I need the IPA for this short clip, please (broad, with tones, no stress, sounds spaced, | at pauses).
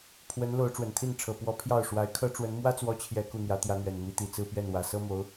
pʰ w ə˧˥ n l o˧˥ ʊ̯ ʈ͡ʂ w ə˨˩ n t̪ʰ i˥˩ n ʈ͡ʂʰ ɤ˨˩ p w ɔ˧˥ pʰ j ɑ˥˩ ʊ̯ ʂ w a˧˥ ɪ̯ kʰ ɤ˥ ʈ͡ʂ w ə˧˥ n m w ä˥ t͡s w ɔ˧˥ t͡ɕʰ j ɛ˨˩ k u˥˩ n̪ j ä˧˥ t̪ j ä˧˥ n̪ ɥ ɛ˨˩ n m i˧˥ t̪ i˨˩ t͡s ɹ̩˥˧ p ɥ ɛ˥˩ n w ä˨˩ s ɤ˥ m o˧˥ ʊ̯